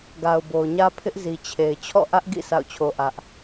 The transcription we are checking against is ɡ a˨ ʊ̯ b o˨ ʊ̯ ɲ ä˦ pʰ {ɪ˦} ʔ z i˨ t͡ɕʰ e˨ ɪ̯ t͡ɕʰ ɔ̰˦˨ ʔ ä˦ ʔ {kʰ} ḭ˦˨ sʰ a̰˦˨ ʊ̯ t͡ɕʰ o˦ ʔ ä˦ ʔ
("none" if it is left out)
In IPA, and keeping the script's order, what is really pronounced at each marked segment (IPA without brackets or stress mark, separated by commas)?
ɪ˦, ɡ